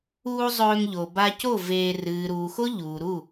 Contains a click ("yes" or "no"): no